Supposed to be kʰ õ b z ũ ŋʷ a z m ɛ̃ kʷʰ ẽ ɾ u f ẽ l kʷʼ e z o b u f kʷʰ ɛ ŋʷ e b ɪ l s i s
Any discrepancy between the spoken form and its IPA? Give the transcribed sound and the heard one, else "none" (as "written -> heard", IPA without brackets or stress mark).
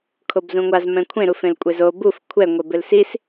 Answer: õ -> o